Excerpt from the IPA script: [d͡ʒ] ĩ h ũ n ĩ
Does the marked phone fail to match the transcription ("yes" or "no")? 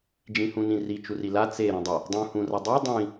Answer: no